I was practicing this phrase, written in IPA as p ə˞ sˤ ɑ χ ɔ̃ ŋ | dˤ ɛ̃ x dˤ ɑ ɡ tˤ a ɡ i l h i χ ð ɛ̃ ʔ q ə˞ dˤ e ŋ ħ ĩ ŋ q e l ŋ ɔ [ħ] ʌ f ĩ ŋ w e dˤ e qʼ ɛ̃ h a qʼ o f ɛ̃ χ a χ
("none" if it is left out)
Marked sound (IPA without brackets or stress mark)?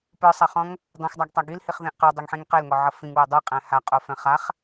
ʕ